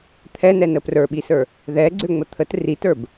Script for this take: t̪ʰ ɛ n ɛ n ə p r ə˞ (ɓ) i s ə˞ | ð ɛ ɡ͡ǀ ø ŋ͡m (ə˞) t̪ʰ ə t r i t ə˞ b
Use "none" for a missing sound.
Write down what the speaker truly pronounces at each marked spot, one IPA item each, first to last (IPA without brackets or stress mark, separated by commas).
ɓ, ə